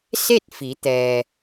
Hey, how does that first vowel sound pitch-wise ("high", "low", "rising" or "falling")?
falling